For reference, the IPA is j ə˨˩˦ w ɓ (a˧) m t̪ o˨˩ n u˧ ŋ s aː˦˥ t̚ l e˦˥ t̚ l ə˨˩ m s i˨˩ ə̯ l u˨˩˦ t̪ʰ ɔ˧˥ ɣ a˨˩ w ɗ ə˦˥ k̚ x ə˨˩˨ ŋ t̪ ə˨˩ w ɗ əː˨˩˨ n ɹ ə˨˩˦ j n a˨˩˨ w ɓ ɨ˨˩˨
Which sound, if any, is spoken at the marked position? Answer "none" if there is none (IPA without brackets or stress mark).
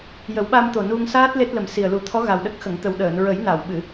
a˧